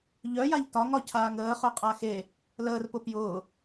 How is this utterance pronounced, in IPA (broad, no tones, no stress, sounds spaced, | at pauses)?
ʎ œ j a ʎ t ɒ ŋ ɒ cʰ aː ŋ əː χ œ qʼ a x e | l əː r p ʊ p j ʊː